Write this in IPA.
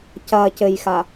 c ɐ c ɘ j x a

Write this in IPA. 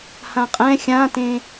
h ã qʼ ɛ̃ xʲ ã t ẽ

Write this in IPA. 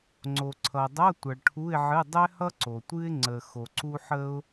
ŋ͡ǀ o˨ ǀʰ ʌ˨ dˤ ʌ˧˥˧ tʷ ʌ˨ ɭ ʈʰ u˧˥˧ ɪ̯ ʕ ɨ˧˥˧ dˤ ɛ˥ h ʌ˥ ǀ o˨ tʷ ɨ˥ ɪ̯ ŋ͡ǀ ə˨ x o˨ ǀ u˥ ħ ə˥ ʊ̯

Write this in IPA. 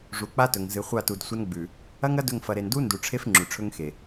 ʐ u˨ k͡p a˦ t ɵ˨ ŋ z ɨ˨ χʷ a˦˨ t u˨ d sʷ ɐ˦ n ɡ͡b ʉ˨ | ɐ˦ ŋ ɐ˦ d ɵ˦˨ ŋ f ɐ˨ ɾ e˨ n d u˦ n d u˨ ʈ͡ʂʰ e˦ f ŋ͡ǁ ʉ˨ ʈ͡ʂʰ ɵ˦ ŋ x e˨

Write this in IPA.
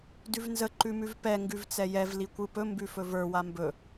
d ʉ v n z ə ǃ ʉ m ʉ v p ɛ ŋ ɡ ʉ v t͡s ɛ j ɛ v l i kʷ ɯ p ɵ m b ʉ f ɵ v ə˞ w a m b ɵ

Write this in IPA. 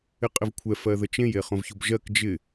ɪ qʼ ɪ v kʷʰ ɛ f ɜ ð ə t͡ʃ ẽ j e χ õ v ç o b ʒ ɜ k d͡ʒ ɪ

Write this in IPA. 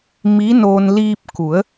m i˧˥ n oː˧ n l iː˧ p̚ k u˩˧ ə̯

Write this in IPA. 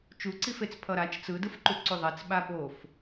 t͡ʃ u ǀ i f e t͡s pʰ ʌ ɾ a t͡ʃ t͡s ɯ d ɯ f ǃ u ǀ u ðˤ ɛ t͡s ɓ a ɓ o f

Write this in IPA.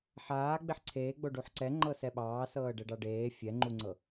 ħ aː ɡ͡b e ħ ǀʰ eː ɡ͡b o ɖ u ħ ǀ ɛ ŋ͡ǃ ɤ s ɛ ɓ ɑː s ɤː ɖ ɛ ɖ ɑ ɖ eː fʲ ɛ ŋ͡ǃ u ŋ͡ǀ ɤ

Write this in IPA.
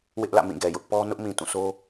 w ɪ˦ ʔ l ä̰˦˨ m ĩ˦˨ ɡ ɛ˨ j ʊ˦ ʔ p ɔ˦ n ʊ˦ ʔ m ĩ˨ t ũ˦˨ s o˦

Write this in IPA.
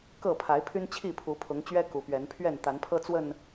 k ɤ˥˨ pʰ a˨˦ ɪ̯ pʰ y˦ n t͡ɕʰ i˥˨ pʰ u˨˦ pʰ ʊ˨˦ ŋ t͡ɕ ɥ ɛ˦ k u˨˦ p ɥ ɛ˨˦ n pʰ ɥ ɛ˥˨ n t̪ a˨˦ n pʰ ɤ˦ t͡s w ə˥˨ n

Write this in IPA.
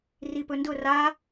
r i p ɵ n d ʊ r a

